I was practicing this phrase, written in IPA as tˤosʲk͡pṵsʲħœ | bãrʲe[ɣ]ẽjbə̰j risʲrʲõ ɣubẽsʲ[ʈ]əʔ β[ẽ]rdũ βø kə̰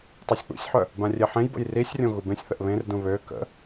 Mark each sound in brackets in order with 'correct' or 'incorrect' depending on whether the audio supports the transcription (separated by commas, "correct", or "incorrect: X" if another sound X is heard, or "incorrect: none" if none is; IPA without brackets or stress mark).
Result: incorrect: ħ, incorrect: θ, correct